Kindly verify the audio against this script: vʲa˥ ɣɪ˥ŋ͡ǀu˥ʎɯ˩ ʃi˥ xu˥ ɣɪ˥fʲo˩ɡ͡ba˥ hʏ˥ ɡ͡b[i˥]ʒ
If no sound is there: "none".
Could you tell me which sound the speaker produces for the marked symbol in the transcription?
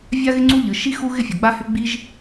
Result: i˥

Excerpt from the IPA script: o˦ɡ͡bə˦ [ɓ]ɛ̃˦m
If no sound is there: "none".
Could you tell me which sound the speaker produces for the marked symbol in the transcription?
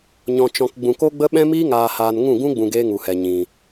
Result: ɓ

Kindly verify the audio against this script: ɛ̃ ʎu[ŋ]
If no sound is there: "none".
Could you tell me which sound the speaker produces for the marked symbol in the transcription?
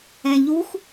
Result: x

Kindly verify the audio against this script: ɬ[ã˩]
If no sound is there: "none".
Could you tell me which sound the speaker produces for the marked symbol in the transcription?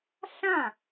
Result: ã˥˩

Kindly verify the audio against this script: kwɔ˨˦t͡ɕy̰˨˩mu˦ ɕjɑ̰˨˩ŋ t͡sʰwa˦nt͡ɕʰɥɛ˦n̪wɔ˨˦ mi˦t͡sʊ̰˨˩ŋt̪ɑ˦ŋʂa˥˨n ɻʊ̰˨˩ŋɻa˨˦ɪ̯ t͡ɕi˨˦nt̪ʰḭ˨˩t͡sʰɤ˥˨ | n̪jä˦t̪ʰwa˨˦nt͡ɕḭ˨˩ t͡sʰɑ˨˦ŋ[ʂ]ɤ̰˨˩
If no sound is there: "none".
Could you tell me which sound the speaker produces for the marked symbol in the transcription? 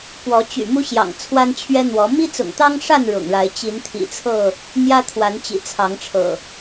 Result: ʈ͡ʂʰ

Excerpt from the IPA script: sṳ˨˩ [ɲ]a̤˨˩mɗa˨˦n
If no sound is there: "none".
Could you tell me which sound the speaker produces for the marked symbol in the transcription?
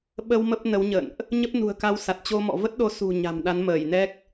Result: ɲ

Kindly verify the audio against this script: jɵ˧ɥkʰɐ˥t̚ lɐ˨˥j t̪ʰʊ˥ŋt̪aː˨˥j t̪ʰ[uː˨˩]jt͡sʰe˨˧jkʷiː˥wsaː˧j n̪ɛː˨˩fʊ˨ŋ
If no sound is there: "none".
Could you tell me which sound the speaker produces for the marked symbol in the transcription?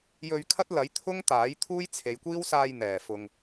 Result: uː˥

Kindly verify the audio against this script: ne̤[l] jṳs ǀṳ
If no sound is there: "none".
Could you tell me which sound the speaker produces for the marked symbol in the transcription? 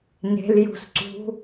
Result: l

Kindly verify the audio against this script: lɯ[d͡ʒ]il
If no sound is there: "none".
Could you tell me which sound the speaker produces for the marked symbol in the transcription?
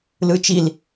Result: t͡ʃ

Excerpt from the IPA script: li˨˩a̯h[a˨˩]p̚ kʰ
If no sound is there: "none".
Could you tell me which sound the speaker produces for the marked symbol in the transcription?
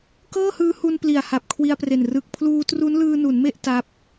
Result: a˨˩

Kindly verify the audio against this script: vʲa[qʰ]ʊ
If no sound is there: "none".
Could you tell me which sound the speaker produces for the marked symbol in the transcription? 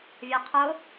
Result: qʰ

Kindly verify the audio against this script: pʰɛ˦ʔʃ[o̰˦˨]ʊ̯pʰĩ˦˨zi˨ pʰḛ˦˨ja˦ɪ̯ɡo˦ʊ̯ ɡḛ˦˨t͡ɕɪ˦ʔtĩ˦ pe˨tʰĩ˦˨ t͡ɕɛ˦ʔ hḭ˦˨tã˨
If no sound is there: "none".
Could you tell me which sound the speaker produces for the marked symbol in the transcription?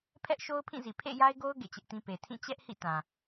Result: o˦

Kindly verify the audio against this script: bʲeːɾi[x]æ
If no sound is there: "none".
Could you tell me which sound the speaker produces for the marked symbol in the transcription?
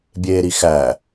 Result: x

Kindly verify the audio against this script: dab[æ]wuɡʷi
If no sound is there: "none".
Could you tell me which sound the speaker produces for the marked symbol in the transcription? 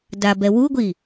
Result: ɛ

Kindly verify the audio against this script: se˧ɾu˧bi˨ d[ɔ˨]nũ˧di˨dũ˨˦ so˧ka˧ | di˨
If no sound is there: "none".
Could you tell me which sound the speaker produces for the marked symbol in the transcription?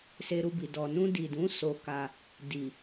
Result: ɔ˨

